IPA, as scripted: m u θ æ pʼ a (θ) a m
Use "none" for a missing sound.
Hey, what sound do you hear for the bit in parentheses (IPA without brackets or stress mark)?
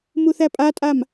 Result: tʼ